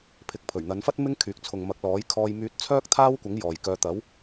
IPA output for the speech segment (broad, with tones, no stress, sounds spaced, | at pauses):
pʰ ɪ˨ k̚ pʰ ɵ˨˩ ɥ n̪ ɐ˨˧ n f ɐ˥ t̚ m ɪ˥ ŋ kʰ yː˨ k̚ t͡sʰ ʊ˨ ŋ m ɐ˨˥ k̚ l ɔː˨˥ j kʰ ɔː˧ j m yː˧ t̚ t͡sʰ œː˥ k̚ t̪ʰ aː˥ w kʷ ɐ˨˥ ŋ j ɔː˨ j k œː˧ t̪ ɐ˨˥ w